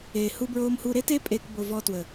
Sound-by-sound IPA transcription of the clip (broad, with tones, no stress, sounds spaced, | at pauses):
eː˨ h u˦ b ɹ oː˦ m h u˦ ɾ e˦ t e˦ pʼ eː˦ k b o˧ v ɔ˧ t w ə˨